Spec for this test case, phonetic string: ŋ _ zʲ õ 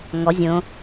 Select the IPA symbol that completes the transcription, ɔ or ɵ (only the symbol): ɔ